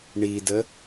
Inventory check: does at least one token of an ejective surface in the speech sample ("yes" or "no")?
no